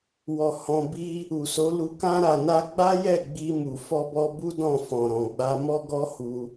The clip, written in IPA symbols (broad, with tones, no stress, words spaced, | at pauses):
wɔ˨ hɔ̃˧ bi˧ | u˨so˨˦lu˧ kã˦ ɾa˧na˦ ɡ͡ba˦jɛ˦˨ ɡ͡bi˧mu˨ fɔ˧bɔ˧ bu˦ dɔ̃˦˨fɔ̃˨ ɾɔ̃˨ɡ͡ba˧ mɔ˦ɡɔ˦hu˧